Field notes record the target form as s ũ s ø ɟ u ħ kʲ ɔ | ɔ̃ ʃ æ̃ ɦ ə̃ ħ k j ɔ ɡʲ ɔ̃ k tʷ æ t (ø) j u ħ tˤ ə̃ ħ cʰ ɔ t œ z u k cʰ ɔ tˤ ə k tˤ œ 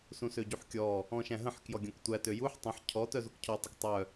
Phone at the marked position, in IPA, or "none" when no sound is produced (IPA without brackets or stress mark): ø